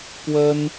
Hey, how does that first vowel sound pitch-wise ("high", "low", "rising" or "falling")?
high